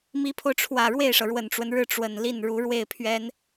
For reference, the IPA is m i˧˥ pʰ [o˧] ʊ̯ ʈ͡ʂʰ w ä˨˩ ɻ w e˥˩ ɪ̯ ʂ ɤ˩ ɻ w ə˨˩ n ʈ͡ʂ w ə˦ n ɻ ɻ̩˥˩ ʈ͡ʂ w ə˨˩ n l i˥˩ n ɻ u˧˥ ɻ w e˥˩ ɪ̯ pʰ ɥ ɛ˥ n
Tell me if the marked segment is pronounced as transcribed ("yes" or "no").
yes